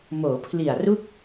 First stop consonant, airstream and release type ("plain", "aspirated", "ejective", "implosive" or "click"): aspirated